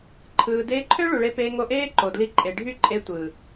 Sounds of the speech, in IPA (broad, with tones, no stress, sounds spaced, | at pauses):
ǃʰ ɯː˨ d eː˧ ǃʰ ø˦ ɭ u˨ ɭ e˧ p eː˧ ŋ o˧ ʔ eː˦ ǃ o˨ d l i˧ ǃʼ e˨ ɖʱ y˦˨ ǃʼ e˧ tʷ ɯː˨